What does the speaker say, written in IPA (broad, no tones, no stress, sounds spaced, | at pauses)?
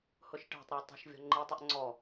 h ʊ ʃ ʈ æ̤ tˤ ɾ ɛ tˤ ɑ̤ ʃ vʲ ɔ̤ ŋ͡ǃ i tˤ ʌ ʔ ŋ͡ǀ ɔ